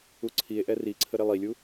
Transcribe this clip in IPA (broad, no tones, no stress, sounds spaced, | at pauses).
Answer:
u ǀʰ i e̯ ʔ ɛ r i ǀʰ ə ɾ e lˠ i lʲ u